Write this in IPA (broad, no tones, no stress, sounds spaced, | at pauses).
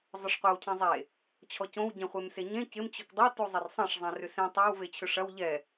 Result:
zˤ ʊ ʂ qʷ ɛ w cʰ ẽ zˤ e | t͡ɕʰ ɔ c õ w ɟ ẽ χʷ e m s e ɲ ẽ c ɪ m t͡ɕ ʊ k dˤ o t u zˤ ɪ r sˤ ɐ̃ ʂ zˤ ẽ r ʏ s ẽ tˤ ɐ w v e t͡ɕʰ ʏ ʂ ɐ w ʎ ɛ